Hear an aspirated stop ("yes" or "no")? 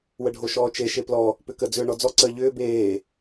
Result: no